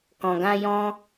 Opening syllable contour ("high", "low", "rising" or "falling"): low